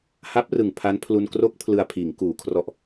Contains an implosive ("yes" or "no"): no